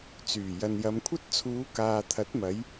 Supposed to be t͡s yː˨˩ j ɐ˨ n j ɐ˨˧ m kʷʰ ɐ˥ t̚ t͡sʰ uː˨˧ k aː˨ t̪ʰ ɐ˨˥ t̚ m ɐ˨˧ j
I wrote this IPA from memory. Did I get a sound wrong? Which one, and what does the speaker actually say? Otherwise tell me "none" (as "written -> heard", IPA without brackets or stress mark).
none